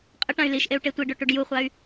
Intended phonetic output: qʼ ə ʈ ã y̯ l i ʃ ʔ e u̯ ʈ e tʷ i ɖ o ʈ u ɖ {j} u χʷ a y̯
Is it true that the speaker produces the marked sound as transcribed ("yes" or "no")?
yes